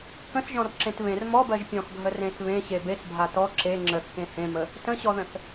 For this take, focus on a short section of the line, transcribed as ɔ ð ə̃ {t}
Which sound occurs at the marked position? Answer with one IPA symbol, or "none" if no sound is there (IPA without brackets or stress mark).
θ